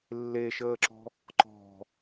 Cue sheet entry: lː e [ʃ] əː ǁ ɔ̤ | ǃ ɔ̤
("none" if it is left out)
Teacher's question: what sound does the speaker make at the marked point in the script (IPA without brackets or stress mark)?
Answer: ʃ